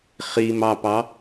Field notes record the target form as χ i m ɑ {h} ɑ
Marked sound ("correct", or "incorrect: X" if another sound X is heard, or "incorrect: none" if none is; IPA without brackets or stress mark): incorrect: p